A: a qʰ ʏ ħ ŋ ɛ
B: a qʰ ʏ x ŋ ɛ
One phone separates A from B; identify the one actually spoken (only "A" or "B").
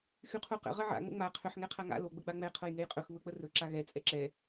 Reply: A